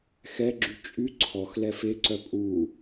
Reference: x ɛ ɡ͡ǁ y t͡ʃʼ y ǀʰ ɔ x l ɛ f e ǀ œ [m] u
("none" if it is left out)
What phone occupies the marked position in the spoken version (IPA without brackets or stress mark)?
pʼ